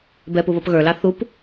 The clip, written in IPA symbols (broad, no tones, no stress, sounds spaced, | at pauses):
b ɛ p u β ʌ p ɣ ə˞ l ɑ θ u p